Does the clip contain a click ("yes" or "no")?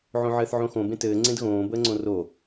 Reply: yes